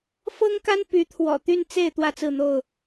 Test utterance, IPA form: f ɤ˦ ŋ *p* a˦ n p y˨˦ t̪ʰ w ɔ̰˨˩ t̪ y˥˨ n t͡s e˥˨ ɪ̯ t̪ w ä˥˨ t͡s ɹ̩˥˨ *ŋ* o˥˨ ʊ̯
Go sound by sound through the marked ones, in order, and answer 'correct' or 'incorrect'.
incorrect, incorrect

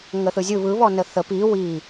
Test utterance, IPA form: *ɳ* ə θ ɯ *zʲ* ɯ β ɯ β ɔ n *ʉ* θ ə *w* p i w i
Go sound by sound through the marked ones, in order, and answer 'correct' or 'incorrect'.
incorrect, correct, incorrect, incorrect

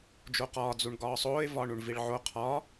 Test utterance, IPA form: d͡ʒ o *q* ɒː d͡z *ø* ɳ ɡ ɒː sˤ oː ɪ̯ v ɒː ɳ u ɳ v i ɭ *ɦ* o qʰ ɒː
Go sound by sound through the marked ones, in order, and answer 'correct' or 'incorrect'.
correct, incorrect, incorrect

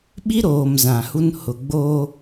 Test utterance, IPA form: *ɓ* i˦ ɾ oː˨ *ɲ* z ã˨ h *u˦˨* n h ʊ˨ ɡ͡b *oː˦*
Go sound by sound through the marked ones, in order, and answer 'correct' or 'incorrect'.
correct, incorrect, incorrect, correct

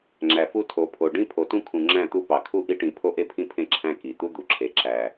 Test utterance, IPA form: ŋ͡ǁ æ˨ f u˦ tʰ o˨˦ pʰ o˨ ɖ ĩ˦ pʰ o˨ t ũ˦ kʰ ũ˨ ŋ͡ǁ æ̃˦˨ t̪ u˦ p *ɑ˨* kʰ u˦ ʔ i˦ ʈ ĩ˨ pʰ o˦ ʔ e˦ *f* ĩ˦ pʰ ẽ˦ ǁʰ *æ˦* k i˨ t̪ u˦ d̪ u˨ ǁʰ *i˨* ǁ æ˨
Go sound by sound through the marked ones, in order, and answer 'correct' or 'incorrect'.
correct, incorrect, incorrect, incorrect

